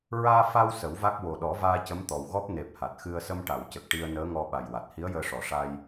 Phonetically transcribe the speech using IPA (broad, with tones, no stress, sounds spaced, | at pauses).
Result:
ɹ aː˧ f a˧ w s ə˨˩˦ w v a˦˥ k̚ w o˨˩ ɗ ɔ˨˩˦ v aː˧ c ə˧˥ m t̪ ɔ˨˩ w ɣ ɔ˦˥ p̚ n e˨˩ p̚ h a˨˩ t̚ x ɨ˧ ə̯ s ə˧ m ʈ a˨˩˨ w c ə˨˩ k̚ ʈ i˧ ə̯ n əː˧˥ ŋ ɔ˧ ɓ a˨˩ j w a˨˩ t̚ h i˧˥ ə̯ j əː˧ ʂ ɔ˨˩˨ ʂ a˧ j